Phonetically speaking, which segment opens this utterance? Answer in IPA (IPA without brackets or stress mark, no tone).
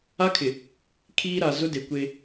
a